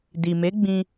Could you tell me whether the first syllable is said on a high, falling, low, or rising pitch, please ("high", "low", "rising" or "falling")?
low